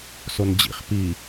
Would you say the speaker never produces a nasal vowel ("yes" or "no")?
yes